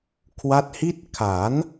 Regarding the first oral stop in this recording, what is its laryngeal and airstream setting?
aspirated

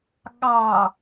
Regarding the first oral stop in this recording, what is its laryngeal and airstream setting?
implosive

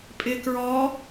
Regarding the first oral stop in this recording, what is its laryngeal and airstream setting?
ejective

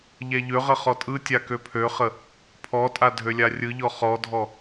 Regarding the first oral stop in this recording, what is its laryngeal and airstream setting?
ejective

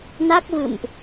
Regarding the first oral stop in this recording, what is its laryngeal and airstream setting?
plain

